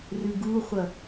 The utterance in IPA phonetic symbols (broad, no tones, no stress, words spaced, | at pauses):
rɨɡuχʷɐ